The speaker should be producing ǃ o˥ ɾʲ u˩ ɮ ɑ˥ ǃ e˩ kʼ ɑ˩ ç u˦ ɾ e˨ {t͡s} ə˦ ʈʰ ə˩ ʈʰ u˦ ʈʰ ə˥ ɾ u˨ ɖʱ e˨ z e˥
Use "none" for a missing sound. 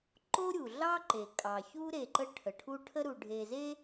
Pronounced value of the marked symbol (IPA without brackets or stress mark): ǃ